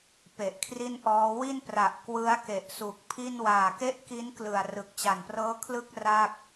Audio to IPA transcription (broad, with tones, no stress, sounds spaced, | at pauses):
p e˨˩ ʔ kʰ r i˥˩ n ʔ ɔː˦˥ w i˥˩ n p r a˨˩ ʔ k w ɯ˦˥ a̯ k e˨˩ ʔ s u˨˩ k̚ pʰ i˥˩ n w aː˨˩ k e˥˩ ʔ k i˦˥ n k l ɯ˨˩ a̯ r ɯ˨˩ k̚ t͡ɕ a˨˩ n p r ɤː˦˥ kʰ l ɯ˥˩ k̚ r a˥˩ k̚